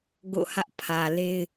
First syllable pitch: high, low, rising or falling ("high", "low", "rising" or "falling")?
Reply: falling